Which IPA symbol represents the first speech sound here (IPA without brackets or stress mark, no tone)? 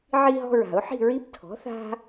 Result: ʕ